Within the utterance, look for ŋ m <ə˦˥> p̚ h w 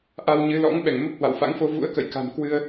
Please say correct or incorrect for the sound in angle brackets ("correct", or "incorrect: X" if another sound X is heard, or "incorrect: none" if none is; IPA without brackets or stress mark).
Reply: correct